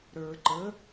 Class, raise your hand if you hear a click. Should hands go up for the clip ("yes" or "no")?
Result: yes